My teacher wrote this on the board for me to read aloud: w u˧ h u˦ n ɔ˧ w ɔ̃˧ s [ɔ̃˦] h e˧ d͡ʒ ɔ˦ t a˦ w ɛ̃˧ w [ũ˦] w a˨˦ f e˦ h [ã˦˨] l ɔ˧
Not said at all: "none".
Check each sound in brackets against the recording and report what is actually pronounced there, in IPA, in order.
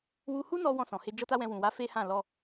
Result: ɔ̃˨, ũ˨, ã˦˨

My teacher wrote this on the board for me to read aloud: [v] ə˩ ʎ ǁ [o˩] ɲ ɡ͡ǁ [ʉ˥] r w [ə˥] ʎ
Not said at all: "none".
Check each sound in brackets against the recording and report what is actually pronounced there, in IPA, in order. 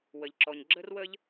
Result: w, ɔ˩, ə˥, ə˥

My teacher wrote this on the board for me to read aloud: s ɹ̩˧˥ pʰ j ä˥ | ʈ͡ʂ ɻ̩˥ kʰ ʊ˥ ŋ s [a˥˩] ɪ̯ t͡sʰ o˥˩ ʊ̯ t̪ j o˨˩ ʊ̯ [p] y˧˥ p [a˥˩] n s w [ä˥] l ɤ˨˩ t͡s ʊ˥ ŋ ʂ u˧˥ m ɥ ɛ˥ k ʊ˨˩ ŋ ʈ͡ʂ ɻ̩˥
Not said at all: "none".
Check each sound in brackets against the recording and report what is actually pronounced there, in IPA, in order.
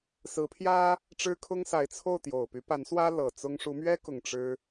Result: a˧˥, p, a˧˥, ä˥

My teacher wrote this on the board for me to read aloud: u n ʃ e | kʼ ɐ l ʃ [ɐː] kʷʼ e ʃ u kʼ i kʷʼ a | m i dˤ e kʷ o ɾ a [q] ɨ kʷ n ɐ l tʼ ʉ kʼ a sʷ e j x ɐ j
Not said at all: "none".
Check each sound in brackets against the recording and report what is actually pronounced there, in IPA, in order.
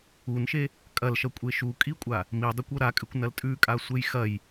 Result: ɐ, kʼ

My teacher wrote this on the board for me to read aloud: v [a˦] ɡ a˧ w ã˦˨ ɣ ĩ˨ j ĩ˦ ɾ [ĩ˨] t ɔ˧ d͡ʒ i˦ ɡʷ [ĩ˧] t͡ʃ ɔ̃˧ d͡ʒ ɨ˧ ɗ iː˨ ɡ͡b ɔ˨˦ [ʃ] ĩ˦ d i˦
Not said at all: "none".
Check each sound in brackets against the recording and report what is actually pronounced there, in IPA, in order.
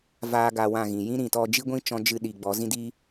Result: aː˦, ĩ˨, ĩ˦, z

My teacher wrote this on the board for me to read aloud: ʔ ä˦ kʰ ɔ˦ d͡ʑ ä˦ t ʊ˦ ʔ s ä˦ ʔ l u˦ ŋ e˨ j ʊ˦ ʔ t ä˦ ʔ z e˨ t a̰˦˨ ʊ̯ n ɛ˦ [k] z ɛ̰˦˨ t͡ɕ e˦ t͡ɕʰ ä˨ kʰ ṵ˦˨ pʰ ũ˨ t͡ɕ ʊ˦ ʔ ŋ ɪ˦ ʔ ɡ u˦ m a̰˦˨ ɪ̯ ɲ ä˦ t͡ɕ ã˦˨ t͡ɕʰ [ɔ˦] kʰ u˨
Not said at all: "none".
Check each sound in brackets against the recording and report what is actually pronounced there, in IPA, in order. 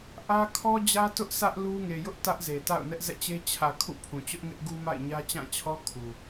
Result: ʔ, ɔ˦

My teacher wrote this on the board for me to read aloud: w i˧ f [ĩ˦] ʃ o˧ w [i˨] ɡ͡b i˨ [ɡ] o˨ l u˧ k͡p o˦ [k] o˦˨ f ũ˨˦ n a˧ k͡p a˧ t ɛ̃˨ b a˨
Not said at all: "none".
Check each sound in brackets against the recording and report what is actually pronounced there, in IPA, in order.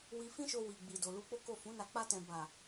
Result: ĩ˦, i˨, d, k

